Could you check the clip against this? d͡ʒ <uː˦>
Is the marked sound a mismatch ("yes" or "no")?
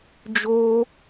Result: yes